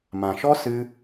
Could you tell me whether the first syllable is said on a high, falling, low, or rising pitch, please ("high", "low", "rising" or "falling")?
low